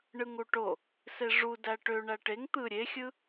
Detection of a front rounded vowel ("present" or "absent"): present